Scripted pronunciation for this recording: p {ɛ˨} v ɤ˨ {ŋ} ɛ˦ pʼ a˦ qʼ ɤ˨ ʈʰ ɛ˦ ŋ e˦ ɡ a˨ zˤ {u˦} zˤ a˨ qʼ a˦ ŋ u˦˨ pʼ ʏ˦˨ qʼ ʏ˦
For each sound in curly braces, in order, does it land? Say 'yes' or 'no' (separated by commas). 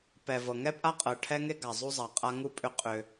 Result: yes, yes, yes